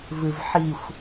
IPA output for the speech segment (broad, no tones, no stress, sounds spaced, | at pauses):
v ɨ v ħ i xʷ